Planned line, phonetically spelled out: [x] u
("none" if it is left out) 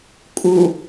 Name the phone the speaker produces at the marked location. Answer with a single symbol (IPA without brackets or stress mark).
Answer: kʼ